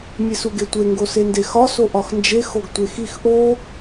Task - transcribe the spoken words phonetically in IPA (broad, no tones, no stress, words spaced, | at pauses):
mʲesuɡetʷe ŋɡosendexɒ soʔɒxnd͡ʒe xoɡtʷexix ʔo